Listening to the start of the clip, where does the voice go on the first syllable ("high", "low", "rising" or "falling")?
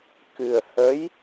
low